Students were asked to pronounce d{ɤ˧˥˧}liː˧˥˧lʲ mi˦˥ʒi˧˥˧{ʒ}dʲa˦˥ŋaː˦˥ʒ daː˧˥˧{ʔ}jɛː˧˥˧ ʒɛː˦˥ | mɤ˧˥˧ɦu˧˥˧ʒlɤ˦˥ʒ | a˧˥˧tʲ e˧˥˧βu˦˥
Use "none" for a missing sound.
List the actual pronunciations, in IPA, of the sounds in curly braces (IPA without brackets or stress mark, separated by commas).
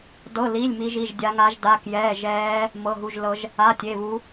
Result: ɤ˧˥˧, ʒ, k